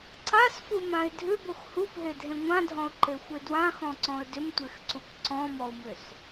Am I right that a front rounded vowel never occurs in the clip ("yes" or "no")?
no